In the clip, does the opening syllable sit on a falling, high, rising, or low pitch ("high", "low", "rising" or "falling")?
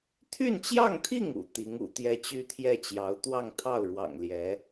falling